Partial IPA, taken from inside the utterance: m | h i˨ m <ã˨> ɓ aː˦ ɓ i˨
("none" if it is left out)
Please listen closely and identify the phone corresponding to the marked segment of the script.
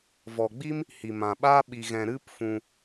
ã˨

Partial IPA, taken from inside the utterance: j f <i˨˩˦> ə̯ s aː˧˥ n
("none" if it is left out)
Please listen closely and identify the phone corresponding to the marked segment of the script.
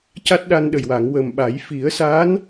i˨˩˦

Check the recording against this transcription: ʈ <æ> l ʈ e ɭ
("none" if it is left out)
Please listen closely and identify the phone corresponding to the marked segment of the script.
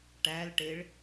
æ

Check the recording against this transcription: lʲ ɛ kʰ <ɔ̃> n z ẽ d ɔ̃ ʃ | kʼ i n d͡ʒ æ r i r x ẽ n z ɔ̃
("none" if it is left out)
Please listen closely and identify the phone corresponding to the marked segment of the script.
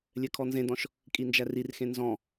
ɔ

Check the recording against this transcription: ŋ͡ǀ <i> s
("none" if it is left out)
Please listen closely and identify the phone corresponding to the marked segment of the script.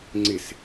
ɪ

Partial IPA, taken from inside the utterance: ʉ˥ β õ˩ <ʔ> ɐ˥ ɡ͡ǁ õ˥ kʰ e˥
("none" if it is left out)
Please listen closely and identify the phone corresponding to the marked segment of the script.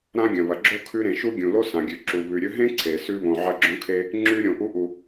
ʕ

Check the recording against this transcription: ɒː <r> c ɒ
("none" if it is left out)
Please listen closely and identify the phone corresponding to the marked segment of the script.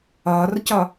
r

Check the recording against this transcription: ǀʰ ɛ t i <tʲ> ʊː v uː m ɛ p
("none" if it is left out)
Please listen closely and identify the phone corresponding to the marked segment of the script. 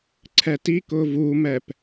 k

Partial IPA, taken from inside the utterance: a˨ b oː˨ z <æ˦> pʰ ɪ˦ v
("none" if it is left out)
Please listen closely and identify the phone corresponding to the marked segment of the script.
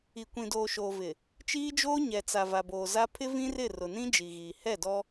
a˦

